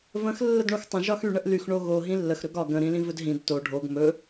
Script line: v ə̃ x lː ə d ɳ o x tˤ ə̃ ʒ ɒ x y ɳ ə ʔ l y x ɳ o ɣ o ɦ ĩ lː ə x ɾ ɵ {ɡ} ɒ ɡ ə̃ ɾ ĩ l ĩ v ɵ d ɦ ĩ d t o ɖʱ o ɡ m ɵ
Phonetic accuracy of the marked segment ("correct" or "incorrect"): correct